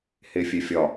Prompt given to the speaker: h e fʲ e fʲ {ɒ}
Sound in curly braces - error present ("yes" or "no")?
no